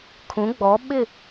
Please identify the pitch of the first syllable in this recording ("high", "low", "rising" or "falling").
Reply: rising